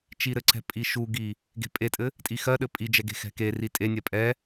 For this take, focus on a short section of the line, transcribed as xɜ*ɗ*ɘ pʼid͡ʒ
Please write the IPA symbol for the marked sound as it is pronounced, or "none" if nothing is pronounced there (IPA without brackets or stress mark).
ɗ